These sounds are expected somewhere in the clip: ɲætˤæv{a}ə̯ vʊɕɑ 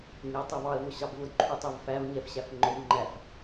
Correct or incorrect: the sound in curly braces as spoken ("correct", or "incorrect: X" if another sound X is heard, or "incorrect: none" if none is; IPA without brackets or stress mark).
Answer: incorrect: ɑ